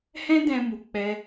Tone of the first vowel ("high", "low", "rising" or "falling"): high